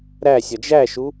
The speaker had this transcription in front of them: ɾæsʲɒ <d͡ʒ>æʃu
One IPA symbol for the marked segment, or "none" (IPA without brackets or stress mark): d͡ʒ